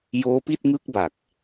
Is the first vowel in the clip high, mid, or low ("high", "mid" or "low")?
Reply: mid